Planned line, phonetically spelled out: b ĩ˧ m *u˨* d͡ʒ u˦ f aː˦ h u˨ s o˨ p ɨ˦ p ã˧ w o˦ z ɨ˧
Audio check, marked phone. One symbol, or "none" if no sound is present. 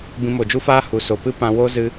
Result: o˨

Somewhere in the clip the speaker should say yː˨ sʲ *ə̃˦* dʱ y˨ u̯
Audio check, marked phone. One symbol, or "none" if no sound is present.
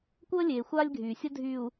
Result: ə˦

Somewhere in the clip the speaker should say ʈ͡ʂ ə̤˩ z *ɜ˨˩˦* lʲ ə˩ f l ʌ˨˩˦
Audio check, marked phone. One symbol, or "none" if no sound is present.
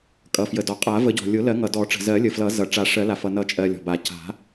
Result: ɜ˨˩˦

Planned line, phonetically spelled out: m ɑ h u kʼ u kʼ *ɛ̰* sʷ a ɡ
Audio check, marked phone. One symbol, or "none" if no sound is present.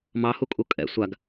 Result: ɛ̰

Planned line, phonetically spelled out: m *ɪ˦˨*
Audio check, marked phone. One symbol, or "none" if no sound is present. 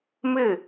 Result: ɪ˦˨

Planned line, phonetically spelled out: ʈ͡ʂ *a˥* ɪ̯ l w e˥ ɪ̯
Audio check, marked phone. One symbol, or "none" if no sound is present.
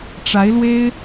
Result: a˧˥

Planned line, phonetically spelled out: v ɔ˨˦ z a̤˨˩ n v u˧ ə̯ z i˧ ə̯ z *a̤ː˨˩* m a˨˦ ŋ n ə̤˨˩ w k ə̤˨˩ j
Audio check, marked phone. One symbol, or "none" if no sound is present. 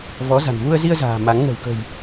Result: a̤ː˨˩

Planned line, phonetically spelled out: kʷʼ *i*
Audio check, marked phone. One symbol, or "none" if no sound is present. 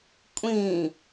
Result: ĩ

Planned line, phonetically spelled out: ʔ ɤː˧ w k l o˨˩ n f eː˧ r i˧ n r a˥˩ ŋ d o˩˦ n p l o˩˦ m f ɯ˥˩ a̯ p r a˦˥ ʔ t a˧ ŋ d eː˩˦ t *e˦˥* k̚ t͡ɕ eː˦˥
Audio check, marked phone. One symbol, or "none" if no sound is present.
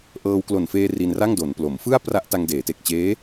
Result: e˨˩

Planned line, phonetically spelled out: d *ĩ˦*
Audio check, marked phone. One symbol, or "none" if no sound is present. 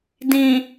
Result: ĩ˨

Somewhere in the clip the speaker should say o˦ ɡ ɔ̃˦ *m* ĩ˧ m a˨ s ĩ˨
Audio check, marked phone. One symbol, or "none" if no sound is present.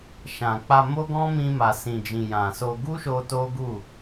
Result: m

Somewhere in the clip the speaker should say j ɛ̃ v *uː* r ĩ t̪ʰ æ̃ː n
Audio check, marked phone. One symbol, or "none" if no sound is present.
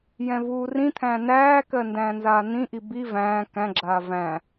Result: uː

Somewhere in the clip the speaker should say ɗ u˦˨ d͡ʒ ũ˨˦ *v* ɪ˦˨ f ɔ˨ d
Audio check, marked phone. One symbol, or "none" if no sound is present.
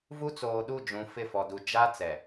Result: f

